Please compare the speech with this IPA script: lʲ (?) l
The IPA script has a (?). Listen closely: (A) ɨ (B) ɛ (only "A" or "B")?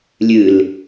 A